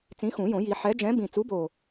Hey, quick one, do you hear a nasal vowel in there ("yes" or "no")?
yes